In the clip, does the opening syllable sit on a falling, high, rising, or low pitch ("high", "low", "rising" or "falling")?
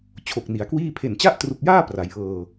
low